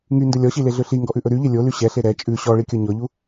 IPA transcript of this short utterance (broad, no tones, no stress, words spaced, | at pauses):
ŋyndɵ lʲɔɕileɮø ɬiŋɡɔʔʉʔɵ ɾyʎe lʲoly ɕɛɬe ɾɛ t͡ʃʼʉ ɕɔɭikʲɔ ɲɔʎu